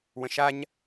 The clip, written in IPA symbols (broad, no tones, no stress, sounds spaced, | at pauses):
w ə̃ ʃ a ɲ